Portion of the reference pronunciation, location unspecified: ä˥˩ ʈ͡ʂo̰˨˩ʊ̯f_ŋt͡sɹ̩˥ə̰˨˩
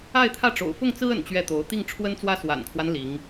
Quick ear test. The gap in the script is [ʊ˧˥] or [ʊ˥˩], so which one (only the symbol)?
ʊ˥˩